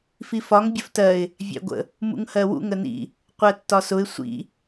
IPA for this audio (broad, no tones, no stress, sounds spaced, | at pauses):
f i f ɒ ŋ bʲ ə f t ɜ ɪ̯ | vʲ æ̰ ɡʷ ə̰ | m ṵ ŋ h ɜ w ṵ ŋ ə n ḭ | qʷ ɜ tː ɒ s ʊ ɪ̯ sʷ ḭ